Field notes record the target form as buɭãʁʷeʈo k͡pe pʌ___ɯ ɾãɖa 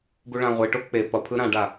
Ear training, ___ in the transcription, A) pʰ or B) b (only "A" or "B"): A